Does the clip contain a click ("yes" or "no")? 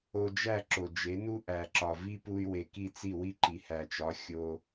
yes